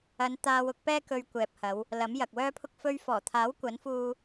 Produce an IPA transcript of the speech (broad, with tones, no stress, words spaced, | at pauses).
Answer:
ɐ˨˧n t̪aː˧wʊ˨˥k̚pɛː˥ kɵ˧ɥkʷɛː˨p̚hɐ˨˧w | lɐ˨˥mjɐ˨k̚ wœː˥pʰʊ˥k̚ fɵ˧ɥfɔː˨˩t̪ʰaː˨˥w kʷɐ˨˥nfuː˧